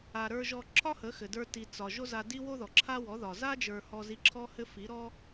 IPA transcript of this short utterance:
a˨ ɾ ə˞˧ ʒ ɔ˧ ǁʰ ɒ˦ h ə˨˦ x ɘ˨ d ə˞˧ t i˨ t͡s ɒ˨ ʒ o˦ z a˧ d i˦ w o˦ ð ɔ˨ ǁʰ a˦ w ɔ˨˦ ð ɒ˨ z a˦ d͡ʒ ə˞˨ h ɔ˦ z i˦ ǁʰ ɔ˦ h ɘ˦ f i˨˦ ɾ ɔ˦

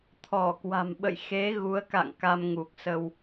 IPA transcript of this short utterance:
t̪ʰ ɔ˧˩ k w a̤˨˩ m ɓ ə̰˧˨ j x e˨˦ ɣ u˨˦ ə̯ k a̰˧˨ ŋ k a˧ m ŋ u˨˩ k̚ s ə˧ w

